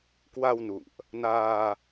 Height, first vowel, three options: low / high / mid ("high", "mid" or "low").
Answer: low